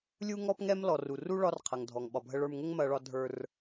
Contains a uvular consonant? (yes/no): yes